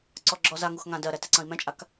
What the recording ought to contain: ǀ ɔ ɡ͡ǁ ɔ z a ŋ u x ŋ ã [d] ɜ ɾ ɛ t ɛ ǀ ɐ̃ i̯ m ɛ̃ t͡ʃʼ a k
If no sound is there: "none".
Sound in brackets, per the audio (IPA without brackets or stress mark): d